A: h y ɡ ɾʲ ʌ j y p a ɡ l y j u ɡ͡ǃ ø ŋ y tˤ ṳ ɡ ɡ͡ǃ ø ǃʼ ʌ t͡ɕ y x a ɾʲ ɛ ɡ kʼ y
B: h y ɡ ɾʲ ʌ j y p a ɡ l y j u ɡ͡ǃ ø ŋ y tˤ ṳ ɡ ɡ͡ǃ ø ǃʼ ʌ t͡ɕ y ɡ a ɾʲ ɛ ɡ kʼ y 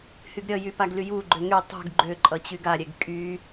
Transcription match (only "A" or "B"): B